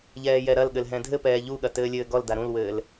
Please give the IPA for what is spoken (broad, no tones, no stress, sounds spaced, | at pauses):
ʎ ɛː j ɛ ɾ ɐ l ɠ ɘ l ɦ ɛ̃ dʱ ɘ p ɛː ʎ u ɠ ɐ t ɘː lʲ ɘː ɡ ɔ l d a ɾ ũ l w ɘː l